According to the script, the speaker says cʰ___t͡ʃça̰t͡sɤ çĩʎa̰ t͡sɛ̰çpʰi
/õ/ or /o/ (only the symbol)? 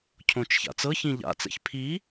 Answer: õ